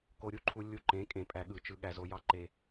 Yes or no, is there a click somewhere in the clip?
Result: yes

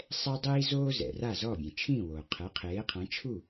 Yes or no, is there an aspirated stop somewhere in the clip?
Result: yes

